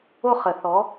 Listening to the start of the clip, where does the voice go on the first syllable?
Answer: high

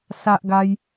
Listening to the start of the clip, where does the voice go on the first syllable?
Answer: high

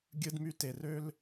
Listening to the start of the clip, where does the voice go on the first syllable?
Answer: high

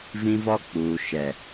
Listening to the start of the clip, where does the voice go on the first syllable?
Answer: high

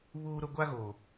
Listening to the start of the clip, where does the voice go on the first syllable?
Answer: high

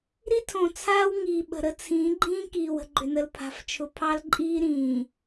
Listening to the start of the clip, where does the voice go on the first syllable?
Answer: high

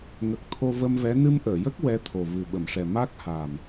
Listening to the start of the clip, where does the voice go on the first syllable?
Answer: low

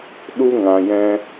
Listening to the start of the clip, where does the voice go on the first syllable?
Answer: high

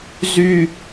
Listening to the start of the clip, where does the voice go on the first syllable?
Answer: high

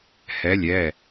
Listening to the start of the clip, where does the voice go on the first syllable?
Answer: rising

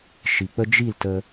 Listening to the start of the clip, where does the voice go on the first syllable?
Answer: low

